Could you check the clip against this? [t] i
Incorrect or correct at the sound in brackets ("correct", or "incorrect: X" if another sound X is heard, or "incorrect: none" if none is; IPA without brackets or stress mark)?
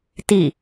correct